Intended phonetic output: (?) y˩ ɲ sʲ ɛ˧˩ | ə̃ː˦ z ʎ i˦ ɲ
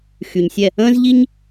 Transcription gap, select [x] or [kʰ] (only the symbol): x